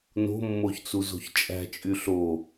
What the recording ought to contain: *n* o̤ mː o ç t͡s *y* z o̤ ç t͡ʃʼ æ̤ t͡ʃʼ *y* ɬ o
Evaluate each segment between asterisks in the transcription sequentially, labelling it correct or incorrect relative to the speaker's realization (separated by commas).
correct, incorrect, correct